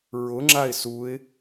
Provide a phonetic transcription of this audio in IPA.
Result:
ɹʊŋ͡ǁaɪ̯ suɪ̯

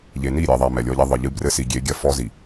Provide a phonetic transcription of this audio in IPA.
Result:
ʎe˨ni˦˨ɾʲɛ˨ðˤa˨ mɛ˨lʲɔ˦ʎɛ˦ ðˤɨ˨ʎɨ˦ brɘ˦si˨ɡʲe˨˦ɡʲɐ˦˨ fɔ˦zi˨

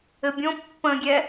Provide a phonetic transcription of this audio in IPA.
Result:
ɘbʲõ pːə̃ɡʲɛ

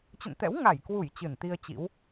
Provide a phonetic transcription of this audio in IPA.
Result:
t͡ɕə̰˧˨nt̪ɛ̰˧˥w ŋa˧˩jkwu˧˩j t͡ɕɨ˧˩nt̪i˧ə̯t͡ɕḭ˧˥w

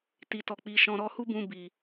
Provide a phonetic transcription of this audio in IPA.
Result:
ti˨tɔ˨ k͡pi˨ʃɔ̃˨ɾɔ˧ hu˦bũ˧ bi˨

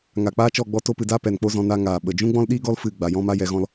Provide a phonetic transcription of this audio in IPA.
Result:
ŋa˨k͡paː˦t͡ʃɔ˦˨ ɡ͡bɔ˧to˧pɨ˨da˦ pɛ˨nk͡po˦zɔ̃˧ na˧ ŋaː˨ɓə˨ d͡ʒũ˦ɡ͡bɔ̃˦l ɗiː˦ɡɔ˦l fɨ˦˨ɡ͡ba˨jɔ̃˦ma˦ jɛ˧ɣɔ̃˦l

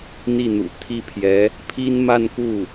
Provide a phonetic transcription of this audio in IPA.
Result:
n̪i˥˩n̪ṵ˨˩ t̪ʰi˥˩pʰjɛ˧˥ | pʰi˥nma˥˧nku˥˩

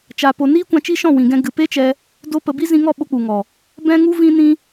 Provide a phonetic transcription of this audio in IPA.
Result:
t͡ʃa˧po˧ niː˦kʷã˧ t͡ʃi˦ʃɔ̃˦˨wĩ˨ɡɛ̃˧ ɡɨ˨pe˦t͡ʃɛ˧ | do˦pə˧ bi˦zĩ˧ŋɔ˦˨ ɓo˦k͡pu˨ŋɔ˨ | bɛ̃˦ŋu˦ vĩ˦nĩ˦

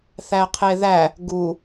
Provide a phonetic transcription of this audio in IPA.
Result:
θæqʰeðæ | ɡu

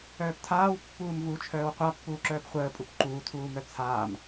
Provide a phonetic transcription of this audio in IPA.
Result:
œːptʰaːw pːuːmvut͡ʃʰœːw qʷapːuːǁœːp χʷəːpʼup ǃuːtʰuːmœ t͡sʰaːm

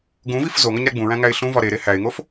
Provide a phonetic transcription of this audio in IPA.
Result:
ɡũvif zoŋɒɲɾæ ɡ͡bũɹæ̃ŋæɪ̯ ɬũvɒ ɾeɾe hæɪ̯ŋof

